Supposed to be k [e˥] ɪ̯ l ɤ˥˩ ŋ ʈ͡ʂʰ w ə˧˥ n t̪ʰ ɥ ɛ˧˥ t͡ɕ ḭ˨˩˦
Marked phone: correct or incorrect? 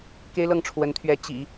correct